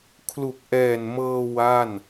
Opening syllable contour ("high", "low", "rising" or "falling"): low